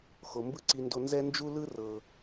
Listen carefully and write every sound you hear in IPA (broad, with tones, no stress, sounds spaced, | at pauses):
x o˨ m b ɯ˦ ǀ i˧ n d o˧ n z ɛ˦ n d͡ʒ u˦ l ɯ˦ r ɤ˨